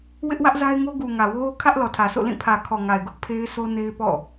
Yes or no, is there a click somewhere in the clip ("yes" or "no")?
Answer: no